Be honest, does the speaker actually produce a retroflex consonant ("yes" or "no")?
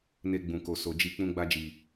no